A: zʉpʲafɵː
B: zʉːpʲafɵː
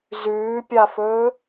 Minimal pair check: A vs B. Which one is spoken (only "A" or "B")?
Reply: B